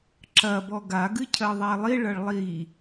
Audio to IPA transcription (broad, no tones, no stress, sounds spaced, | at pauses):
ǁ ɐ b ɔ ɡ a ɡ ɨ cʰ ɜ ðˤ æ lˠ i ɭ ɐ ɭ lˠ i